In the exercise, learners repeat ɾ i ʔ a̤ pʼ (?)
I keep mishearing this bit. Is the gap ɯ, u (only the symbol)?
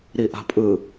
ɯ